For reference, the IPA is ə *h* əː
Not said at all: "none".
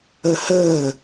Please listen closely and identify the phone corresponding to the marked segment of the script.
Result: h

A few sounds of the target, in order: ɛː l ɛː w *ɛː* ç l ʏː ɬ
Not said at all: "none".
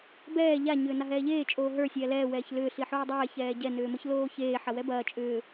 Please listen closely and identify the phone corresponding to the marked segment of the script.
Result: ɛː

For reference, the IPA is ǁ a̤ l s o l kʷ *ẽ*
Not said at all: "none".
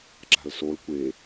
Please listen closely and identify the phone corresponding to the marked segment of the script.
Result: e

